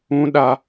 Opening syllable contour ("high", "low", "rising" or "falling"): high